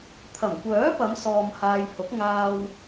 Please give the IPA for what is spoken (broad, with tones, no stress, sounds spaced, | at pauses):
t̪ʰ ɐ˨˩ m kʷ œː˨˥ p ɐ˨˧ m s ɔː˧ m h aː˧ j h ʊ˨˥ k̚ ŋ aː˧ w